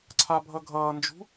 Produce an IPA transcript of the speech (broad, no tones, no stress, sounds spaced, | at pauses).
ǀʰ a bʱ ʌ ɡʱ ʌː n d͡ʒ ṳ